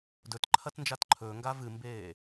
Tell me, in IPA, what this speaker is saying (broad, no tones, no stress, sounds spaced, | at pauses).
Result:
d ɵ t ǃʰ ɐ t n d͡ʒ a t ǃʰ ɵː ŋ ɡ a v ɨ m b eː